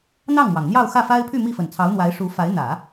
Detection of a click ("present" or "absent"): absent